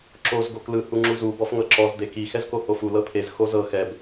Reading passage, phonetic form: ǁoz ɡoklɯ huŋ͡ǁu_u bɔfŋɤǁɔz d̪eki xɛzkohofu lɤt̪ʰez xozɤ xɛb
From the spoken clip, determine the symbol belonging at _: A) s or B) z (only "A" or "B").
B